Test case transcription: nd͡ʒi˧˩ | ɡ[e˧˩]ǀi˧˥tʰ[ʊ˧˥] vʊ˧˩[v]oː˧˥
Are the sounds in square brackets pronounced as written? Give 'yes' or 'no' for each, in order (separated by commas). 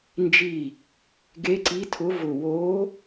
no, yes, no